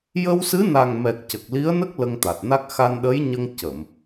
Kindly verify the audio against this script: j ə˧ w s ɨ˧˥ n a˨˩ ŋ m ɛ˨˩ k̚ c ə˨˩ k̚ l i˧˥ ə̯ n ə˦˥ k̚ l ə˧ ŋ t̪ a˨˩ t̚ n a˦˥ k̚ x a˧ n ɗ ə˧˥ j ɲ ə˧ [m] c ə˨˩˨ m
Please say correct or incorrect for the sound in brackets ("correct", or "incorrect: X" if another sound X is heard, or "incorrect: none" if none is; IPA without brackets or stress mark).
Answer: incorrect: ŋ